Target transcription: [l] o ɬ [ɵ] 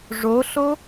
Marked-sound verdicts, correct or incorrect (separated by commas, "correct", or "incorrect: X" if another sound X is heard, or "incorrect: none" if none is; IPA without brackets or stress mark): incorrect: ʐ, incorrect: o